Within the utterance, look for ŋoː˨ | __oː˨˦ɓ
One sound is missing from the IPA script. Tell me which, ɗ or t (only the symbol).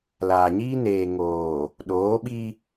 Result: ɗ